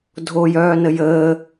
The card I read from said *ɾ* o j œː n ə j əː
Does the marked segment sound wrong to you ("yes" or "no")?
yes